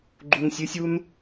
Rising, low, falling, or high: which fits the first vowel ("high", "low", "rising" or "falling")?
low